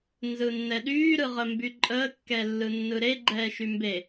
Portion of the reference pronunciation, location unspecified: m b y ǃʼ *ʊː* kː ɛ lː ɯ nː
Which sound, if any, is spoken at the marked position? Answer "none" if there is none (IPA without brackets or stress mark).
əː